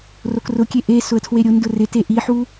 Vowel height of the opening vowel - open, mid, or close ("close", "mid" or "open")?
mid